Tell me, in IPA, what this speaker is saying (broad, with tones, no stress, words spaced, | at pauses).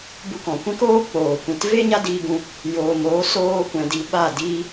bu˧kɔ̃˨kʷɛ̃˦k oː˦k͡poː˨ kʷĩ˨t ve˦ ɲa˦diː˧ɡũ˧ | joː˨moː˨˦soː˧kʷɛ̃˨ di˧ɓa˦˨diː˦